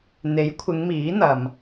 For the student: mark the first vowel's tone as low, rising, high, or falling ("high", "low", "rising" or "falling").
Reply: rising